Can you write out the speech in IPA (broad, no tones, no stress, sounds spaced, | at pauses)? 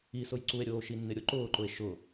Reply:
i s ʊ j ǀ u e̯ ɾʲ oː ʃ i nː ɪ ɾʲ o ǃ ʊː ǃ ʊ e̯ ʃ ʊ